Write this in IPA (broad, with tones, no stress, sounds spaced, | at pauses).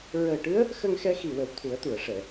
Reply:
ɹ əː˨˩ ʈ ɨ˧˥ ə̯ | x ə˧ ŋ x ɛ˧ x i˨˩ w ə˨˩ w t̪ʰ u˨˩˦ ə̯ t̪ u˨˩˨ ə̯ ʂ ɛ˨˩˨